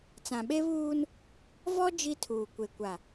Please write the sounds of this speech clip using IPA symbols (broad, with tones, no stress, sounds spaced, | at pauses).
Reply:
t͡s ã˨ ɓ e˦ β uː˦ n | v ɔ˦ d͡ʒ i˦ tʰ uː˨ kʷ e˨ kʷ a˨